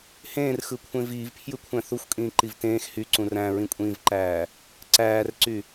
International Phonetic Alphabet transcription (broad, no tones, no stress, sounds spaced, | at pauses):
h ẽː r x ɯ kʷʰ ẽ v iː v pʰ j ɯ kʷʰ æ̃ θ u xʷ kʼ ĩː ǃ i v t ẽː x h y ǀ ũ r æ̃ ɹ ĩ kʷʼ ĩː v ǃ æː | ǀ æː r ǀ y